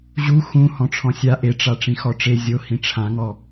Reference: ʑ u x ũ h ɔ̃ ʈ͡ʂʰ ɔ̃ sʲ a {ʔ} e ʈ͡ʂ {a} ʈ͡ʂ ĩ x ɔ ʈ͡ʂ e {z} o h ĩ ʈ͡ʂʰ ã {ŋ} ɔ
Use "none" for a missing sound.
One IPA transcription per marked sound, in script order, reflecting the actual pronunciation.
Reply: ʔ, a, zʲ, ŋ

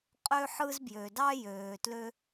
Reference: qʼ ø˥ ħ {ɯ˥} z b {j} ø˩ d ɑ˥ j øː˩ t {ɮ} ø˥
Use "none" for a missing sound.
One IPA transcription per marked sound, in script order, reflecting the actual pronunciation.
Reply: ɯ˥, j, l

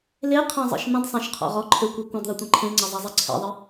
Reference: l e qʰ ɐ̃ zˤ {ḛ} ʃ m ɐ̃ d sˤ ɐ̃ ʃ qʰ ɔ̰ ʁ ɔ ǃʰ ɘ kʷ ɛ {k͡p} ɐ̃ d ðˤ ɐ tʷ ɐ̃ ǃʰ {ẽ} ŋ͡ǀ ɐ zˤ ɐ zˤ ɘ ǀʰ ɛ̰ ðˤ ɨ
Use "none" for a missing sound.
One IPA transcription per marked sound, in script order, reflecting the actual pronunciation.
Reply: ɛ̰, kʷ, ẽ

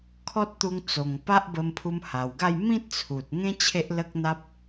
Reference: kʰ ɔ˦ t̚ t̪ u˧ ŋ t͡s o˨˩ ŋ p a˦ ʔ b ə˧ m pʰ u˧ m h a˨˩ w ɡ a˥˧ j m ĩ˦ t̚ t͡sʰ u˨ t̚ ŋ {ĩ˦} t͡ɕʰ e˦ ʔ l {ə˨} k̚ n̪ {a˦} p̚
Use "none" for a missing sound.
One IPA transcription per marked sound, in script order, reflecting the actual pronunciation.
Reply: ẽ˦, ə˦, a˦

